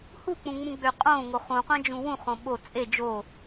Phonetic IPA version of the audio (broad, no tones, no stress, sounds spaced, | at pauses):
h u k͡p ũ ŋ͡m ũ ɡ͡b ø qʼ õ ŋ o χ ũ qʷ æ̃ d͡ʒ ũ w ũ χ õ ɓ o t͡sʼ e d͡ʒ o